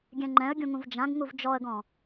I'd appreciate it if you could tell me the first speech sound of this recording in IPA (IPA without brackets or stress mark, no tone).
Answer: ɡʲ